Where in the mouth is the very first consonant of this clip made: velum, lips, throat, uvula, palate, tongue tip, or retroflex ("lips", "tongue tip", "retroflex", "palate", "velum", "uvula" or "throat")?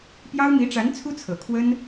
lips